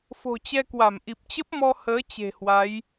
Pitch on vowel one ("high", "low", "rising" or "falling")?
low